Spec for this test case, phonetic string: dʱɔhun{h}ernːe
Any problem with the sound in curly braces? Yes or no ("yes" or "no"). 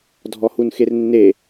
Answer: yes